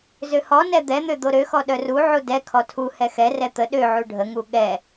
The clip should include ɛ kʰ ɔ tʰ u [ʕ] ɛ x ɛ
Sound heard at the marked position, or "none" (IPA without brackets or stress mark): h